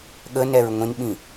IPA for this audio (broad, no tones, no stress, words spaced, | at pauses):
ɠənɛɹ ŋʷĩnɓĩ